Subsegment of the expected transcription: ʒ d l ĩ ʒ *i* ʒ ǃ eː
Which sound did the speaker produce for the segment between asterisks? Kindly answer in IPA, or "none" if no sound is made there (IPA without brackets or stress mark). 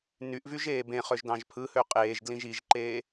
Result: i